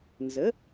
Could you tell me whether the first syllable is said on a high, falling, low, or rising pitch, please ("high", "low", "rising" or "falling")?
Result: rising